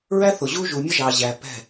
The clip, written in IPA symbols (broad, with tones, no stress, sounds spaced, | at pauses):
ɹ æ˦ θ ʊ˨ ʑ u˦ ʒ u˨ mʲ ə˦ ʒ ɑ˨ ʑ æ˨ p ɛ̤˦˨